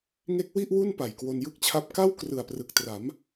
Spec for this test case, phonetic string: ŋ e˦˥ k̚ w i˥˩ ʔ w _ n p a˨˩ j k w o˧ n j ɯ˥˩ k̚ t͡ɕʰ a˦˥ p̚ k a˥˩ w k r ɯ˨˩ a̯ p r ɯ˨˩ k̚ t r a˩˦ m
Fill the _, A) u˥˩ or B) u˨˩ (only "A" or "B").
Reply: A